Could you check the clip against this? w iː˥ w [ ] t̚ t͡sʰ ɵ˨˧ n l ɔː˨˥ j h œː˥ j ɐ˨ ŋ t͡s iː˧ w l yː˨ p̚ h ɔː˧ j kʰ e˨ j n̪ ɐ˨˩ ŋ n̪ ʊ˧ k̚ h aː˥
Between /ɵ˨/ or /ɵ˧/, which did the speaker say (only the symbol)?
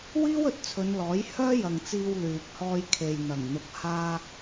ɵ˨